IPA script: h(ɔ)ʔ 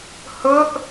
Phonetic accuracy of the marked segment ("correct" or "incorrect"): incorrect